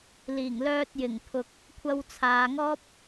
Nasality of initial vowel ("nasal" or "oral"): oral